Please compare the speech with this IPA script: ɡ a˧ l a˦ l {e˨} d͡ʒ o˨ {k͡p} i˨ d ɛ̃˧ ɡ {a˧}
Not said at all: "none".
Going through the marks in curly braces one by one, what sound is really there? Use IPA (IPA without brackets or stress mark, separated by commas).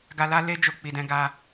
e˧, k͡p, a˧